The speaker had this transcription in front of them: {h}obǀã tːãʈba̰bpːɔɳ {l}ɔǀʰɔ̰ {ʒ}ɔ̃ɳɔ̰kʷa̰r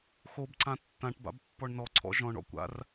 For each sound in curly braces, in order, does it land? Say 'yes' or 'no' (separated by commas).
no, no, yes